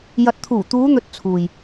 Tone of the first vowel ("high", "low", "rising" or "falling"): low